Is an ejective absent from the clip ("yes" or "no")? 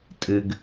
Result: no